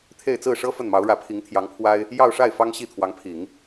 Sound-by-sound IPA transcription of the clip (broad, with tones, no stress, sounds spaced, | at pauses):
t̪ʰ e˥˧ ɪ̯ t͡s ɹ̩˥˩ ʂ ɤ˥ f ə˥˩ n m ɑ˧˥ ʊ̯ ɻ ä˧˥ pʰ i˧˥ ŋ t̪ʰ j ɑ˧˥ ŋ pʰ w a˥ ɪ̯ | j ɑ˥˧ ʊ̯ ʂ a˥˩ ɪ̯ f ɑ˥ ŋ ɕ i˥˩ t̪ʰ w ɑ˧˥ ŋ pʰ i˨˩˦ ŋ